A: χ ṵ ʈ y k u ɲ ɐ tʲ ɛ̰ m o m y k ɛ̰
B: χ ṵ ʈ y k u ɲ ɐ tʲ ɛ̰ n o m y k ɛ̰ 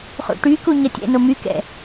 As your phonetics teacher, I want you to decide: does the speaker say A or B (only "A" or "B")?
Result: B